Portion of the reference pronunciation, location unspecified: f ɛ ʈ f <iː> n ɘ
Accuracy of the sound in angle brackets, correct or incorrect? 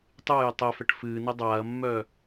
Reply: incorrect